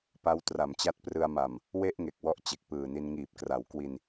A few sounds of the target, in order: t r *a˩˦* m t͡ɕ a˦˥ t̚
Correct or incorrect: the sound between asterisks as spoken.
incorrect: a˨˩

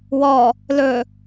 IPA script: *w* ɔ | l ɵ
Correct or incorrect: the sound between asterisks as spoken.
correct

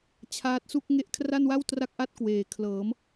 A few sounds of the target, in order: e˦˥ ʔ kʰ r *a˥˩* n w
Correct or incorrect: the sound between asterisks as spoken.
correct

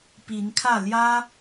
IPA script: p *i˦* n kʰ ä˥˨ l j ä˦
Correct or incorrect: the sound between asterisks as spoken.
incorrect: i˨˦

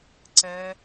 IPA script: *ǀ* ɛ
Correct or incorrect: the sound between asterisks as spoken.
correct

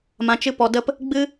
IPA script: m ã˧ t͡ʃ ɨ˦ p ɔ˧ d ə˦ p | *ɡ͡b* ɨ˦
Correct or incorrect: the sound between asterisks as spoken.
correct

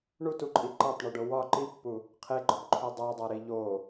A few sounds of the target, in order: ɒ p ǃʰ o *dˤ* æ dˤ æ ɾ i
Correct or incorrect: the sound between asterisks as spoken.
correct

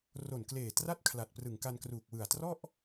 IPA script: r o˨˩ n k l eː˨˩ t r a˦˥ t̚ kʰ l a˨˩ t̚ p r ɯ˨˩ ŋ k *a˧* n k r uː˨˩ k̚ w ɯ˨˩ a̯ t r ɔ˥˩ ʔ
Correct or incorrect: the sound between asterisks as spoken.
correct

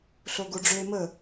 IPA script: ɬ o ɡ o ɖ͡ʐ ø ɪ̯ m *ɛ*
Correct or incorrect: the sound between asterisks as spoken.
incorrect: ə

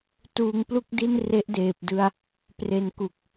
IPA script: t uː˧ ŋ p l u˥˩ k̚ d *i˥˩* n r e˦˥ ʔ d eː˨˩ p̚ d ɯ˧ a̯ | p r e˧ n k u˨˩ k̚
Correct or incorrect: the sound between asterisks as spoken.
correct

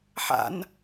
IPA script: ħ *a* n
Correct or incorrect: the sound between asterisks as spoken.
incorrect: a̰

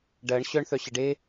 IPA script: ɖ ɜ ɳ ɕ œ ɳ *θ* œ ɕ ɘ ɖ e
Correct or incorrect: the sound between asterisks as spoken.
correct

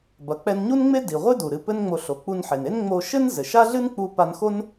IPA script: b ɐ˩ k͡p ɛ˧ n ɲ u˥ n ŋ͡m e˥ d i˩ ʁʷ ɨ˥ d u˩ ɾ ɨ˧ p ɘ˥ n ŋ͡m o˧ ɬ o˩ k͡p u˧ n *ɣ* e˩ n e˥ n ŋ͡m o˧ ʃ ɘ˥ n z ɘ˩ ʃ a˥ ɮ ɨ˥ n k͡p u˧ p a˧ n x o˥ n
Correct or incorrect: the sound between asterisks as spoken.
incorrect: ħ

